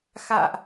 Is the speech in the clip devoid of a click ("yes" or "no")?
yes